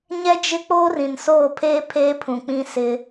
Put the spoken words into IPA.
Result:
ɲ ɛ˦ d͡ʒ ɪ˦ k͡p oː˦ r ĩ˨ n s oː˦˨ pʰ eː˦ pʰ eː˦ pʰ ũ˨ k͡p ĩ˦ s ɪ˦

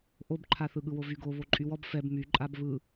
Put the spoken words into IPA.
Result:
ʔ o b ǃʰ a θ ɯ ɠ ɯ w o v y ɡ o β o ǃʼ y w ɔ b f ɛ b m y ǃʼ a b β ɯ

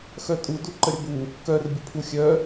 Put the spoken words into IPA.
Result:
x œ tʼ u d u ǃ ə ɾʲ ə b u | k œ r bʲ ə pʰ u xʲ œ

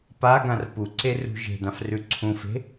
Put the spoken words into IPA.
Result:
p a ɡ ã r p u ǀ e r ṳ ʒ e̤ d ã f r ʉ ǀʰ ũ f e̤

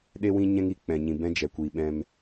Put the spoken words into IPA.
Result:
ɗ e˦ w ĩ˦ ɲ ɛ̃˦ ŋ i˨ k͡p ɛ̃˨ ɲ ĩ˨ b ɛ̃˦ d͡ʒ ɛ˨ kʷ iː˨ ɓ ɛ̃˧ m

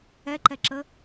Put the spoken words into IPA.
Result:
ɛ ǃ ɛ ǁ ə

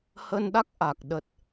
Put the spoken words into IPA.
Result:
h ə˧ n ɗ a˦˥ k̚ ʔ a˨˩ k̚ ɗ ə˨˩ t̚

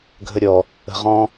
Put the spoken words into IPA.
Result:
ɡʱ ə ɾʲ ɔ | ə̤ ʁ ɔ̃

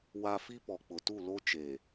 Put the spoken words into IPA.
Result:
w a˦ f i˦ p ɔ˨ k͡p ʊ˨ t u˦˨ l o˦ t͡ʃ eː˨

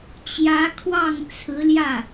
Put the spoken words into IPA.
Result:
t͡ɕ j ä˧˥ kʰ w ɑ˥˩ ŋ t͡sʰ ɹ̩˧˥ l j ä˥˩

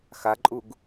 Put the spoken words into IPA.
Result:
x a ǃʼ u ɡ

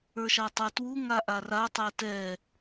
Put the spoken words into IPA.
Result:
ə˞ ʃ a tˤ ə˞ t w u ŋ a ʔ a r a tˤ ɛ t ɛ

